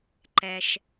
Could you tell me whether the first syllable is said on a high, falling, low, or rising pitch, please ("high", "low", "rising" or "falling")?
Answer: low